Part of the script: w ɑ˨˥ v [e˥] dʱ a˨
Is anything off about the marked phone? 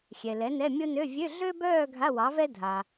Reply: yes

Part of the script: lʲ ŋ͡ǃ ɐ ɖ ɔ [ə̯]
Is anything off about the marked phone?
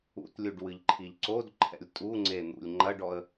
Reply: no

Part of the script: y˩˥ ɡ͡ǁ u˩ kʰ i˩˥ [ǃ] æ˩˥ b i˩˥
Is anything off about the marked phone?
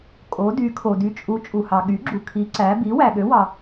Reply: yes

